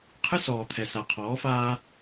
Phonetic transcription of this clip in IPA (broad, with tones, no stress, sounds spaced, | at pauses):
qʰ ɨ˦ s ɔː˨ t̪ʰ ɛ˨ s a˨ qʰ ɔː˨˦ f aː˦